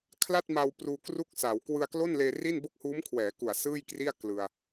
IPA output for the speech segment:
kʰla˥˩t̚ma˧w pruː˧kru˥˩k̚sa˩˦w kwɯ˧a̯klo˥˩nleː˧ri˥˩n bo˥˩k̚huː˦˥mkʰwɛː˩˦ ku˨˩a̯sɯː˥˩jkri˥˩a̯ klɯ˧a̯

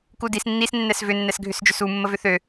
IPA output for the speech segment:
kudis nːisnːɛs vʏ nːɛsɡʱʏsd͡ʒʏsu mːəvʏθø

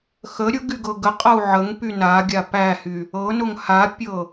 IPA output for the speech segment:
xə ɾʲʊɡy ɡɤɡəqʼɤu̯ ʕəŋpy na ɡʲapæhy | ɤnʊŋ hapʲɤ

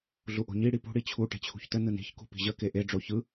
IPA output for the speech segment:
ɮuʔo̤ɲi ɽipṳ ɽit͡ɕʰu ʈe̤t͡ɕʰṳçtə nɯni̤ç kṳpi̤ʑə keʔe ɖ͡ʐoçɯ

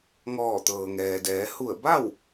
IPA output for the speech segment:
ŋɔː˧˩t̪ɤː˩ŋɛː˩dɛː˩˧ hu˧˩ə̯ ba˥˨w

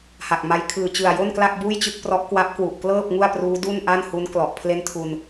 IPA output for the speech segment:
ha˨˩k̚ma˧j kʰɯː˨˩t͡ɕɯ˨˩a̯jo˥˩nkla˥˩k̚ buː˥˩jt͡ɕɯ˥˩k̚prɔ˦˥ʔ kwa˦˥p̚kwu˨˩ʔklɤː˥˩p̚ ŋu˥˩a̯pruː˦˥ du˥˩nʔa˥˩n hu˦˥n klɔ˨˩ʔ pʰle˥˩ntʰu˧n

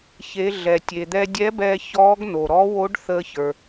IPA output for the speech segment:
çe˩˧ ɮɛ˩ tʲe˩d̪ɛ˧ dʲɛ˧˥bɛː˧ çɔː˧˥ɡno˩ ɾɔ˧˥wo˧˥ɖ θəː˧çə˞˩

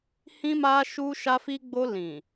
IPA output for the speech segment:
hĩ˧ma˧ ʃu˧ʃa˧fi˧ɡ͡bo˧ lĩ˨

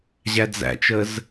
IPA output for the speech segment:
ʑæd͡zæ̰t͡ʃəz

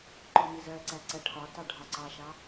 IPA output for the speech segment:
ǃɔmizɜǀæ ǀæʈʰɒtɑ ɖʱɒǀɑʃɑ

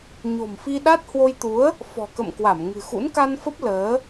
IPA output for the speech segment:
ɲo̤˨˩mfi˧ɗa˦˥t̚ hwo˧jt̪u˨˦ə̯ | fɔ̤˨˩kə̰˧˨mkwa˧˩m ŋɨ̤˨˩xṵ˧˥n ka˧nfə˦˥p̚ ləː˨˦

